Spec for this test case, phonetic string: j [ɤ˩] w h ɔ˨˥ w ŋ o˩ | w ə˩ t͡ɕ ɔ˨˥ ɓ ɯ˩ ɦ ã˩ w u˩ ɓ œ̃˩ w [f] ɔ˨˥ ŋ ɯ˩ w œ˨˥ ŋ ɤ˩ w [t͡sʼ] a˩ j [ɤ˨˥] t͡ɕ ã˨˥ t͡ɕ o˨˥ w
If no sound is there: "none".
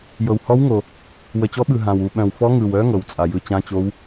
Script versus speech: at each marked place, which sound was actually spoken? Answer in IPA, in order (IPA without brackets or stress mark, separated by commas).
ɤ˩, f, t͡sʼ, ɯ˨˥